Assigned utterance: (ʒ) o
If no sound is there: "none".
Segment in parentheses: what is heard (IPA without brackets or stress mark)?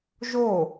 ʒ